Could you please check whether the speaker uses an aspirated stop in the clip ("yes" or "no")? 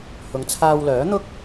yes